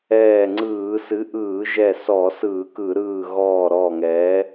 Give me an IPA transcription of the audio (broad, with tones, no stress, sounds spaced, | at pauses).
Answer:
ɛː˧˩ ŋ͡ǀ ɯː˧˩˧ s ɨ˨˥ ʔ ɯː˧˩˧ ʒ ɛ˧˩ s ɔ˧˩˧ s ɯː˧˩˧ k ɯ˧˩˧ ɾ ɯː˧˩ ɣ ɔː˧˩ ɾ ɔː˧˩ ŋ ɛː˨˥